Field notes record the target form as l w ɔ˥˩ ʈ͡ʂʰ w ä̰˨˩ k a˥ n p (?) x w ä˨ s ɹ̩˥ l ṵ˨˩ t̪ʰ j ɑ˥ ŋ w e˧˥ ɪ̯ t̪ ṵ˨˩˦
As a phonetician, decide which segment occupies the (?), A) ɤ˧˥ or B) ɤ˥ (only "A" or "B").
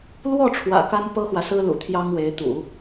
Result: B